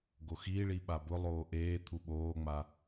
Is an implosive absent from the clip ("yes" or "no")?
no